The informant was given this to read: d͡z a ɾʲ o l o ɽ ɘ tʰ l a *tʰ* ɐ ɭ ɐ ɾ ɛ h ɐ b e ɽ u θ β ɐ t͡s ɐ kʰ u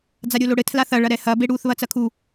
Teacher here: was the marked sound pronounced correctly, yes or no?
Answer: no